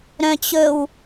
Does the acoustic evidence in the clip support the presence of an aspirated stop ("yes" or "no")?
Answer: no